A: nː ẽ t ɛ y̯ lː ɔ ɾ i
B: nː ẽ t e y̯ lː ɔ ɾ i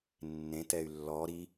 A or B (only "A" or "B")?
A